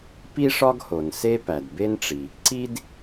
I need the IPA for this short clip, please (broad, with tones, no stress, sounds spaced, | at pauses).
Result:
p i˥ ʂ ɒ˥ ɡ h o˩ n s e˥ p æ˩ d b e˥ n ʈ͡ʂ i˩ | ǀ i˥ d